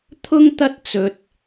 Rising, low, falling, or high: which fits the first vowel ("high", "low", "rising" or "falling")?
high